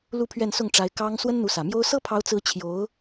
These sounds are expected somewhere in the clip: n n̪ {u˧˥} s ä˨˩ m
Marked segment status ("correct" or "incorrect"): correct